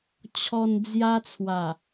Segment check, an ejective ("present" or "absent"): absent